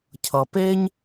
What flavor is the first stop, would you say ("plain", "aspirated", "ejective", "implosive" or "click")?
aspirated